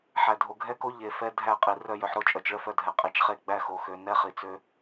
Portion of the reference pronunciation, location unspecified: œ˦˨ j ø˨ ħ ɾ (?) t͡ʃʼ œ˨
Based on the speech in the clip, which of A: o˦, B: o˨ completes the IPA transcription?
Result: A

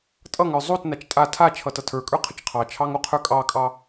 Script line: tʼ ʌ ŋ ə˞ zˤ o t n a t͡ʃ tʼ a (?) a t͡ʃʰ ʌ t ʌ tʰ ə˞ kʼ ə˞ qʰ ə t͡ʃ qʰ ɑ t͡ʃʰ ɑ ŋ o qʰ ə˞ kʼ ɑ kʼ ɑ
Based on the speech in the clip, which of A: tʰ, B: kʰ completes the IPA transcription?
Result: A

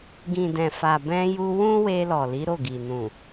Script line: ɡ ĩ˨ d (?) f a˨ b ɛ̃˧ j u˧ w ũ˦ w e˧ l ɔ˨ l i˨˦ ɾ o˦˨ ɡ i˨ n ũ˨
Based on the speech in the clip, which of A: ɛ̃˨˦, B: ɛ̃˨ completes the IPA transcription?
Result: B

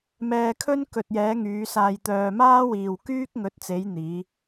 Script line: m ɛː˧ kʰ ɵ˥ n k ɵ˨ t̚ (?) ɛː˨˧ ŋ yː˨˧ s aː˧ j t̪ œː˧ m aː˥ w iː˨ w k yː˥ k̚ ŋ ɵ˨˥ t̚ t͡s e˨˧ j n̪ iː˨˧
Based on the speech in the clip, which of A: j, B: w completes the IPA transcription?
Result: A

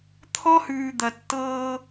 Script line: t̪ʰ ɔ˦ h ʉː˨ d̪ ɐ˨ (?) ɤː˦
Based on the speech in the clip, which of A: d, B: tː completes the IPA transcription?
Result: B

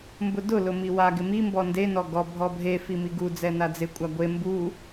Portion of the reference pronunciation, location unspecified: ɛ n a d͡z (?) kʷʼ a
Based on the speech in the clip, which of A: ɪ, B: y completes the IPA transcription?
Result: A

